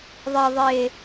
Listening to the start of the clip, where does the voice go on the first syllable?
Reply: low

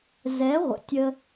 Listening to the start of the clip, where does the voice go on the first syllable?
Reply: rising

